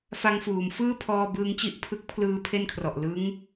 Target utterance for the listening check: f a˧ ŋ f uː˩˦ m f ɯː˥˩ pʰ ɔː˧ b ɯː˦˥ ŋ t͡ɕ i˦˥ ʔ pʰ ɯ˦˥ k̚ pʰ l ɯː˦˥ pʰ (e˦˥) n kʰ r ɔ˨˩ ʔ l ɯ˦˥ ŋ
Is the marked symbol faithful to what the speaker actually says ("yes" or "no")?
no